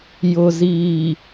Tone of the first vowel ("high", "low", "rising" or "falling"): low